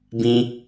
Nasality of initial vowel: nasal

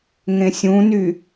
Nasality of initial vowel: nasal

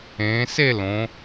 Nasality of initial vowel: nasal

